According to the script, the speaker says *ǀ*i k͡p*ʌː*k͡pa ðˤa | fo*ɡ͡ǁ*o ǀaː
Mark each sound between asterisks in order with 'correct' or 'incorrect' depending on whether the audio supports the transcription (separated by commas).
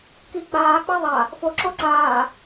incorrect, incorrect, incorrect